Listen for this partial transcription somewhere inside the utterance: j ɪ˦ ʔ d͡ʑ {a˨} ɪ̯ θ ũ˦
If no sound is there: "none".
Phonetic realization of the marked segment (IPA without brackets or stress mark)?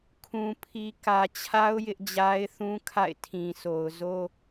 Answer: a˦